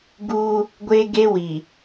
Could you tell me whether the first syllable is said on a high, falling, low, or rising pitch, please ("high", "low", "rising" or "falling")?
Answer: high